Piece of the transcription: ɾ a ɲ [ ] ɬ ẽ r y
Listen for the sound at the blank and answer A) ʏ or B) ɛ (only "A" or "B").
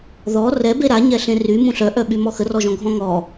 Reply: B